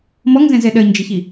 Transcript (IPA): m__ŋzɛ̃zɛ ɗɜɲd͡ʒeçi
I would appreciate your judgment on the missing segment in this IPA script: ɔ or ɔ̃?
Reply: ɔ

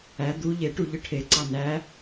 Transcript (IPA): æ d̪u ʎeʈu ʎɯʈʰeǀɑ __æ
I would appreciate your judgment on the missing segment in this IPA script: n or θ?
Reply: n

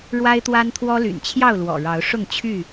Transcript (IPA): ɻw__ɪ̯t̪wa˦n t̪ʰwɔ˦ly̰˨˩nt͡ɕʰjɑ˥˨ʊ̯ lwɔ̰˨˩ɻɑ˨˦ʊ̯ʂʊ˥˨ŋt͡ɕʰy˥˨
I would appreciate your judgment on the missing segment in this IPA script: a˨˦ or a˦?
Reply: a˦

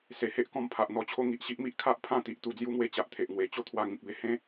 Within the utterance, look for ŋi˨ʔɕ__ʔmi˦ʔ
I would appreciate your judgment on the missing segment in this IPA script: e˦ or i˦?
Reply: i˦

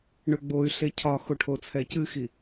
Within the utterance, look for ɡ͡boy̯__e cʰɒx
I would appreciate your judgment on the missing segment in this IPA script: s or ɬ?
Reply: ɬ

